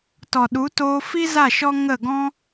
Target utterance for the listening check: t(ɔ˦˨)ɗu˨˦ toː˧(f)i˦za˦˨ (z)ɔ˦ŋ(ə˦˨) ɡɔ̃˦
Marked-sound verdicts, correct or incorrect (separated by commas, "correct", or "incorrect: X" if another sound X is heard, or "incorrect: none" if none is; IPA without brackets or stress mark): incorrect: ɔ˨, correct, incorrect: ʃ, correct